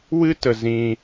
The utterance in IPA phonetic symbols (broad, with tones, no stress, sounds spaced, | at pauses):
w ɨ˧ t ə˨ z ĩ˧